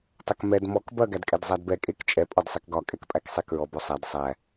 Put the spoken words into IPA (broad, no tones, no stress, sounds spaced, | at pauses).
tˤ ɐ k m ɛ d m ɔ k b ɐ ɡ æ d kʼ ɛ d zˤ æ d b ɛ kʼ e k t͡ʃʼ ɛ pʼ ɒ d sˤ ɛ k ɡ ɒ kʼ ɛ k pʼ æ k sˤ e k ɹ ɔ b ɔ sˤ æ d sˤ æ